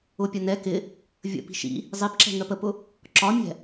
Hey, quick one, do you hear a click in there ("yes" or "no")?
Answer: yes